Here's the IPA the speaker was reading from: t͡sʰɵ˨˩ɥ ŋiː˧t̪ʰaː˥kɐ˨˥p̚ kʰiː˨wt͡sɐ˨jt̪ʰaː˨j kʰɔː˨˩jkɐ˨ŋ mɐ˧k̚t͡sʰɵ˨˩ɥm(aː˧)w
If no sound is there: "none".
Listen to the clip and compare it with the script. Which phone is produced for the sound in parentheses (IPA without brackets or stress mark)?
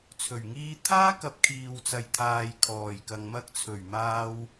aː˧